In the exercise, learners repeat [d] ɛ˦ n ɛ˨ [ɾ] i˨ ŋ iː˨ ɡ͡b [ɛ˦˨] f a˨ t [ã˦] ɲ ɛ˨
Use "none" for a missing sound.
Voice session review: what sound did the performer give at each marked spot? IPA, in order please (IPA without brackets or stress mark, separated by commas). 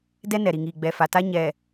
d, ɾ, ɛ˨, a˦